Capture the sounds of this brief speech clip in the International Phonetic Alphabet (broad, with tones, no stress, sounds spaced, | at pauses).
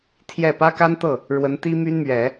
t̪ʰ j ɛ˥˩ p ä˥ k a˥ n t̪ ɤ˥˩ | ɻ w ə˧˥ n t̪ i˥ m y˥ n m ɥ ɛ˨˩˦